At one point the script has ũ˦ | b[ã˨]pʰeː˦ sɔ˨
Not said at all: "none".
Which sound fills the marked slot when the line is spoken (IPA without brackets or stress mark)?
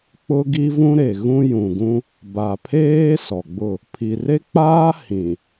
a˨